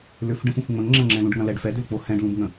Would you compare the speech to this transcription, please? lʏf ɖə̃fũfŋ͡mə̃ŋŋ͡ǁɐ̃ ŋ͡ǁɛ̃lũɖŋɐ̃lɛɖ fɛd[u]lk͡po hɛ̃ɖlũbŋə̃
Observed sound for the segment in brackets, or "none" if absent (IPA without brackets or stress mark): ʏ